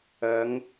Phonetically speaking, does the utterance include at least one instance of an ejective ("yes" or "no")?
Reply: no